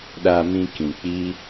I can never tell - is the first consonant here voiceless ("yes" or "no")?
no